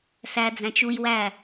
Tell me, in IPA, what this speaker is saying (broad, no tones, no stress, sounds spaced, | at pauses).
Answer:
s æ d͡z æ̃ t͡ʃ u j w æ